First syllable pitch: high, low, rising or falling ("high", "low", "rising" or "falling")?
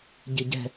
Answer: low